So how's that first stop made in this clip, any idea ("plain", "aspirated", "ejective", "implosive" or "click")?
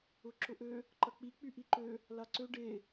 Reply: click